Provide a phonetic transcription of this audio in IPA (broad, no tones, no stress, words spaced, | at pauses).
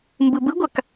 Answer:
mbɯbɯɡʷak